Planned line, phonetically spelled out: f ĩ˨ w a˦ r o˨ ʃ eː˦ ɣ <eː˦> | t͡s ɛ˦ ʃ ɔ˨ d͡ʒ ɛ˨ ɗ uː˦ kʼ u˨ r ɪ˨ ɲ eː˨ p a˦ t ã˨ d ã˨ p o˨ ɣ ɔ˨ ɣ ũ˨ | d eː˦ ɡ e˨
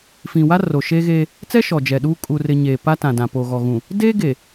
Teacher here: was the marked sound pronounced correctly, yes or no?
yes